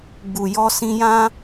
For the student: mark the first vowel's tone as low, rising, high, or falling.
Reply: low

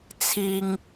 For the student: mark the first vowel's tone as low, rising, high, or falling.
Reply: low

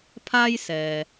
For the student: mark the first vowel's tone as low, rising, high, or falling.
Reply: high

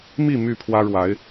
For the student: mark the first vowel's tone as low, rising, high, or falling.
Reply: falling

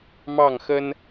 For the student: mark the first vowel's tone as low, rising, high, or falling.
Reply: falling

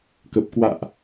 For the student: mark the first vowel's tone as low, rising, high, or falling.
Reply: low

